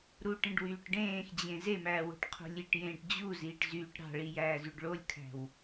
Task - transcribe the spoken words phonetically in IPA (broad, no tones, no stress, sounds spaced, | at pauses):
ɾ u ʈ ẽ ɖ w yː ʈ ɖ ẽː x d͡ʑ ẽ z e m æː w o̤ ʈ qʰ o̤ lʲ i ʈ j ẽː ʈ d͡ʑ u z iː ʈ z yː ʈ ɾ ɑ̤ ɭ i j æː z y ɖ ɭ o lʲ kʰ æ̤ w